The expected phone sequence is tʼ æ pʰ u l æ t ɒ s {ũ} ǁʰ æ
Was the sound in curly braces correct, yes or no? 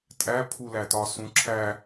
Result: yes